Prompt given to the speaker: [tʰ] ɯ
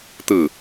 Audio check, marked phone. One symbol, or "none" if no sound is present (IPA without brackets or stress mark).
t̪